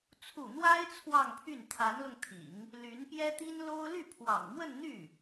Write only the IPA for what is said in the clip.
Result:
t͡sʰu˥˩ n̪wa˥ɪ̯ t͡sʰwɑ˥˧ŋpʰy˥˩n t̪ʰa˧˥nlʊ˧ŋt̪ʰḭ˨˩˦ŋ | ly˧˥npjɛ˥ t̪i˥nlo˥ʊ̯ ly˥˩pʰwɑ̰˨˩ŋmwə˥˧nn̪y˥˩

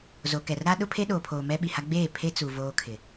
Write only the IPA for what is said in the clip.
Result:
zo˨kɛ˨rɾa˦ ɗʊ˦pʰe˦ɗoː˨pʰoː˨ mɛ˦ɓi˨ha˦ ɡ͡beː˦˨ pʰe˦t͡su˨ voː˦kʰɪ˨

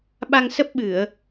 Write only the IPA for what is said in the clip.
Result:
ɓa˧ŋsə˦˥p̚ɓɨ˧˩˨ə̯

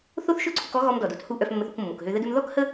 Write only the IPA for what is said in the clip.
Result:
θo˥θʃɵ˥ǀʰʊ˧k ɔ˥ɣɔ˧m dɔ˩do˥thu˧ ʔœ˧fmːə˧θo˧kmːo˩k ɦø˧ðə˥dɵ˥m ðɔ˥khə˥

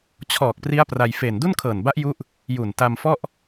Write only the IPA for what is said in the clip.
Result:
t͡ɕʰɔː˨˩k̚ pri˦˥a̯pra˧j fe˨˩n du˥˩nkʰɤː˨˩nba˦˥ʔ ju˦˥ʔ | ju˨˩nta˧mfɔ˥˩ʔ

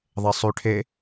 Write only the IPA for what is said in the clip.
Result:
ðˤesˤʉ ʈʰe

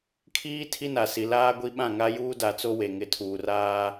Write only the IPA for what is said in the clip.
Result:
kʰiː˦ tʰi˦na˨ si˨laː˦ɡʷi˦ɓã˦˨ ŋa˦juː˦da˨t͡so˦ we˨ŋɪ˨˦tʰuː˨ raː˦

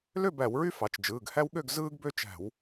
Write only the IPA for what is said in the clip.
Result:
lø˥˨bæ˧˩˧wɹy˦ fɑ˩˧t͡ʃd͡ʒɯː˩˧˩ɡ hæ˦wɠø˥˨ɡ zɯː˦ɡbø˦t͡ʃæ̤˧˩˧w

